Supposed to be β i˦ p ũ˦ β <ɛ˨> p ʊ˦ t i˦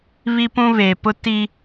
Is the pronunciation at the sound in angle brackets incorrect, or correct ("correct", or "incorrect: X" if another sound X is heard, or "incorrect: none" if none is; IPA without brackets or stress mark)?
incorrect: e˨